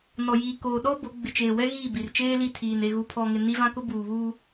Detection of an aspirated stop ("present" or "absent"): present